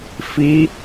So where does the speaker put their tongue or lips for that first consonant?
lips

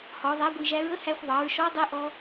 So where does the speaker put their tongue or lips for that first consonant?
throat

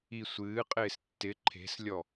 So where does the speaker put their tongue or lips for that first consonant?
tongue tip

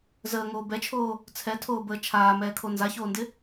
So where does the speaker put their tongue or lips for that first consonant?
tongue tip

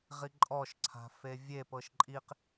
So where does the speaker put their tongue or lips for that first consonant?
uvula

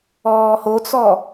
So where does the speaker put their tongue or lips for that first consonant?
throat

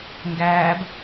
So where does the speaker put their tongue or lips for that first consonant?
velum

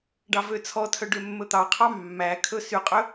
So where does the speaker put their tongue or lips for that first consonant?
retroflex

